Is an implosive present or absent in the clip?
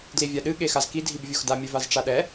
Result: present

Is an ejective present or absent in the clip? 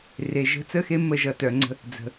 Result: absent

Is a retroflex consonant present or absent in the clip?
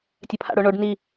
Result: present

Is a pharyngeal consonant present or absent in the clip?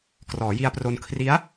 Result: absent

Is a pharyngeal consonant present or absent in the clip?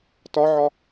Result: present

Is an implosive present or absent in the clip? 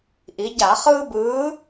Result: absent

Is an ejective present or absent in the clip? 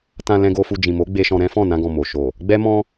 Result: absent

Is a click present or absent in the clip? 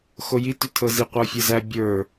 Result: absent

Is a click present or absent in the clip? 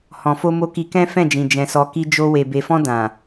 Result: absent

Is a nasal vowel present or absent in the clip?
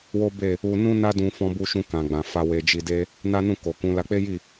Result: present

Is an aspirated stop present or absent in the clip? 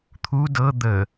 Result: present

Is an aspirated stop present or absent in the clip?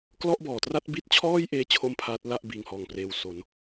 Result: present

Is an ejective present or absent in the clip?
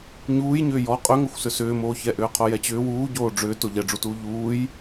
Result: present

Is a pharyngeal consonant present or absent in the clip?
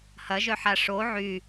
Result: present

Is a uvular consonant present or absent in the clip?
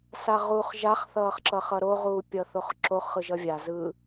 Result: present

